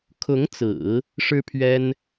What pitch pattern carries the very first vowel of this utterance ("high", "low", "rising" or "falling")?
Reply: rising